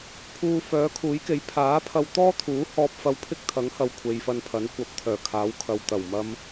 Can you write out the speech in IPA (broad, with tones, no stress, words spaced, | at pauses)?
pʰuː˧ fœː˨˥kʰuː˨˥jke˨˥j pʰaː˨˥ pʰɐ˧wt̪ɔː˥t̪ʰuː˨˥ hɔː˧p̚fɐ˧wpʰɪ˥k̚ t̪ʰɐ˨˥ŋhɐ˨w kʷʰe˨jfɐ˧n pʰɐ˨˥nkʷɐ˨˥p̚t̪ʰœː˨˩kʰaː˨˥w kʰɐ˨wt̪ɐ˨˩wmɐ˧m